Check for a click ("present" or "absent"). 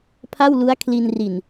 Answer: absent